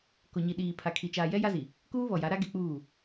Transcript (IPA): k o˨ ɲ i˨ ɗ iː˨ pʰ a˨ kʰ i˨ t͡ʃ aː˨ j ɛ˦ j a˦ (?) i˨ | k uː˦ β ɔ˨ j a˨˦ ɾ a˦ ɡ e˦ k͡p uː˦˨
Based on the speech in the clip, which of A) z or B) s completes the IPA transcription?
A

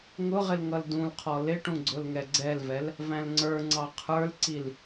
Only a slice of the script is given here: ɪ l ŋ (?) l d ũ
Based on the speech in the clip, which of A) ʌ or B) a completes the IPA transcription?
A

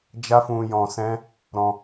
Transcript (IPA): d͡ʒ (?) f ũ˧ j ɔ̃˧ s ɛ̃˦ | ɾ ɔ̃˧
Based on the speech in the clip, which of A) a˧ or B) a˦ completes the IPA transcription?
B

